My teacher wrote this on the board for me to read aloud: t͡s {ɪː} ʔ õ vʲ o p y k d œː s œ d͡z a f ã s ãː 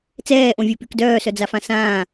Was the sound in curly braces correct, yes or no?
no